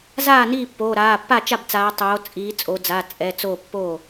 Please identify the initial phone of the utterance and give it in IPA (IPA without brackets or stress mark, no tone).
z